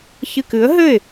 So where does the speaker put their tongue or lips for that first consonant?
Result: palate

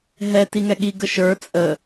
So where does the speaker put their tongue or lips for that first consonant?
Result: throat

